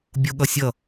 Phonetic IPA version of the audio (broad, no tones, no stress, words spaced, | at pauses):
bʲoɠʌsʲʌ